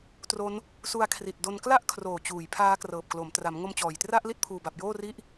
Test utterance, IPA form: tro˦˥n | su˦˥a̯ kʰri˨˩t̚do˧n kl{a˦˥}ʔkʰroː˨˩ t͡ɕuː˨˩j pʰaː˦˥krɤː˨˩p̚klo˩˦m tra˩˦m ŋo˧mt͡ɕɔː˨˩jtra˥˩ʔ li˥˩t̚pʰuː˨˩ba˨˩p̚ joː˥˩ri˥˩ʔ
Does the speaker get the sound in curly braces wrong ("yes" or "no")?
yes